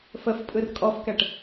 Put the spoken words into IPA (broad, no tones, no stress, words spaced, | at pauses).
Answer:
fəfpʼɯr kʼɔfkɛʈ